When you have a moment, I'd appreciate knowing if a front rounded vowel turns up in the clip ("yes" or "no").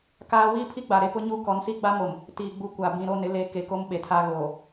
no